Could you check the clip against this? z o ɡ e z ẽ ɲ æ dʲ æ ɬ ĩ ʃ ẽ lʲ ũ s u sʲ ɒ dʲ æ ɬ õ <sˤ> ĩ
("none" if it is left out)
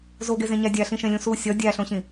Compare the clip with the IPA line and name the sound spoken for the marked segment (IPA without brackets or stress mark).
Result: ɕ